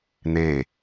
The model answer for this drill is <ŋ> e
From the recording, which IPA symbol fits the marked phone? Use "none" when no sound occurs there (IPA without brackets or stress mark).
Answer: n̪